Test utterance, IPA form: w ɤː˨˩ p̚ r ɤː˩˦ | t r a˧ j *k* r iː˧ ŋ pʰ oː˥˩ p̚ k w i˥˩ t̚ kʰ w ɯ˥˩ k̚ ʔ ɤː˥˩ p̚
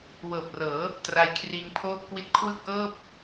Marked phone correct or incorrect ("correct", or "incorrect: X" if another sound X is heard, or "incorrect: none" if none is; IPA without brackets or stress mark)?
incorrect: kʰ